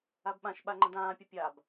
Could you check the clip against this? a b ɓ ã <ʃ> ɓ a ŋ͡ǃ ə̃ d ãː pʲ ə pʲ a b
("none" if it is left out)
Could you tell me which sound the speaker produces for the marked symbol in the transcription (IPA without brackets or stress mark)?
ʃ